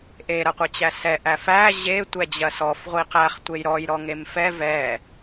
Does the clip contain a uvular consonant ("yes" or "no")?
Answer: yes